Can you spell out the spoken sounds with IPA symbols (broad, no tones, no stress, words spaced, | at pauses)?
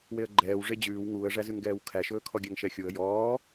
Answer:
weə̯ɡ͡ǃɛːw ʐed͡ʑʉːw ŋuːə̯ʐæzʉŋɡɛːw kʰæʃɵːkʰɔɡʲæŋ ʃɛxʲuə̯ jɔː